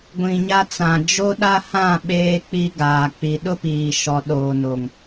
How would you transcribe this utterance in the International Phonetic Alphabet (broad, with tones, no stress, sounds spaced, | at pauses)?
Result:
ɡʷ ĩ˨ ɲ a˦ t͡s ã˨ d͡ʒ o˦ ɗ a˦ h ã˦˨ ɓ eː˦ k͡p i˦ ɡ aː˨ k͡p i˨ ɗ ʊ˦ p iː˨ ʃ ɔ˨ ɗ oː˨ n o˨ ŋ